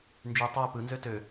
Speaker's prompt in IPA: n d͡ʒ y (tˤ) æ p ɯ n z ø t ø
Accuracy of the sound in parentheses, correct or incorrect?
correct